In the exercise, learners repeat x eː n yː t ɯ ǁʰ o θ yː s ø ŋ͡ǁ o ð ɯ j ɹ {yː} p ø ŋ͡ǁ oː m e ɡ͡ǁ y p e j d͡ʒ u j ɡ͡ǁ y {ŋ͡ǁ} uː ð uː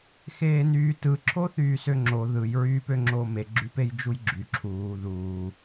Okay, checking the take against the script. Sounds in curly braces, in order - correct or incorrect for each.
correct, incorrect: ǁʰ

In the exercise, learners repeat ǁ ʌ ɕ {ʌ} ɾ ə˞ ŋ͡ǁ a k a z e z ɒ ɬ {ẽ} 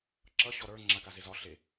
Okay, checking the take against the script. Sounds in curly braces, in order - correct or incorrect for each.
incorrect: ɔ, incorrect: e

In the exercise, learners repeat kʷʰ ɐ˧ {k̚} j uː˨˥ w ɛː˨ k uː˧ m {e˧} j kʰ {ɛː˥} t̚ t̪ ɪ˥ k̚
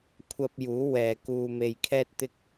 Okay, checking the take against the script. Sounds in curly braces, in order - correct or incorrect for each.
incorrect: p̚, correct, correct

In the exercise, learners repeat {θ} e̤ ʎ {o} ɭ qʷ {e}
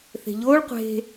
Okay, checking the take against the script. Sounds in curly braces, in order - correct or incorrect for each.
correct, correct, incorrect: e̤

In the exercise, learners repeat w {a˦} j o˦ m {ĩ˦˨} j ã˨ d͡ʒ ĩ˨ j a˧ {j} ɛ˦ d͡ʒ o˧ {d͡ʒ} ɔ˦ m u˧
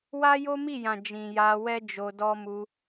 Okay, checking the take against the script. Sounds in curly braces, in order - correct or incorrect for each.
correct, incorrect: i˦˨, incorrect: w, incorrect: d

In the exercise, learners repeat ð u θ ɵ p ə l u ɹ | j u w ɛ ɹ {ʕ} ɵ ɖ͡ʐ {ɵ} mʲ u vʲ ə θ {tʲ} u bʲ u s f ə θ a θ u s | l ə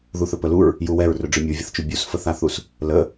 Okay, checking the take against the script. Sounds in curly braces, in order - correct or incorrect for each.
incorrect: r, correct, incorrect: t͡ʃ

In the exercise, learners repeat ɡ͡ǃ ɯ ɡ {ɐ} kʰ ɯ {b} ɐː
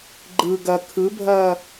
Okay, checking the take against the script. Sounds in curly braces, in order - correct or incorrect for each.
correct, incorrect: bʱ

